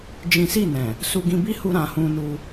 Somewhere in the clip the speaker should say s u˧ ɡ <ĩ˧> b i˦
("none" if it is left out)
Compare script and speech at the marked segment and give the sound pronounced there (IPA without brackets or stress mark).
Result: ĩ˧